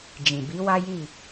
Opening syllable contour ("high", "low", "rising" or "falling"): low